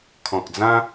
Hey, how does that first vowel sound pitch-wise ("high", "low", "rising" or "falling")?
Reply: low